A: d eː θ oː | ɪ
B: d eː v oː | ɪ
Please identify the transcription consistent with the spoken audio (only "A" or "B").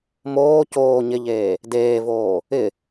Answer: B